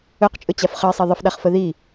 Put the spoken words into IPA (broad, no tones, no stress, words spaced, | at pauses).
ɵqt͡ʃʼɵt͡ɕaf χəɪ̯sˤi ðˤəfɗaχfə ði